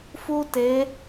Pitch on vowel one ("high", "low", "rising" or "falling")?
high